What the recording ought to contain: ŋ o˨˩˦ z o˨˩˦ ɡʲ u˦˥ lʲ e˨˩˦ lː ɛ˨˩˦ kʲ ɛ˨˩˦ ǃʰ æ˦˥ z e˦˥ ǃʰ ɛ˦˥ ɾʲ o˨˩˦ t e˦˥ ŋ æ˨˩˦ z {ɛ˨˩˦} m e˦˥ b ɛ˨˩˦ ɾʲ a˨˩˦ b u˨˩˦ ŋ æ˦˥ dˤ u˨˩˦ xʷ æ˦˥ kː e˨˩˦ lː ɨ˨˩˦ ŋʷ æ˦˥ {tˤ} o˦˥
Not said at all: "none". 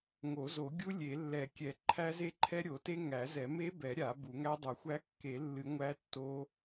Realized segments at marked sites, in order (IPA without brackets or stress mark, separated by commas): ɛ˨˩˦, tː